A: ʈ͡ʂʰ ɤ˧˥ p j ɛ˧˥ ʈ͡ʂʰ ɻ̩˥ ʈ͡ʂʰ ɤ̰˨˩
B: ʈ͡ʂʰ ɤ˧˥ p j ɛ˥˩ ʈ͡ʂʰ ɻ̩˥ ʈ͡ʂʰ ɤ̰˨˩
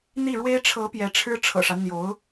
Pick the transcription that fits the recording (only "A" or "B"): A